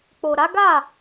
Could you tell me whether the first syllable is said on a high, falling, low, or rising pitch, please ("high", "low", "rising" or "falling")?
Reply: low